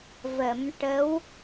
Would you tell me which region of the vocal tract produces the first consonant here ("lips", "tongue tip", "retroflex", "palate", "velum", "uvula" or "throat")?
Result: lips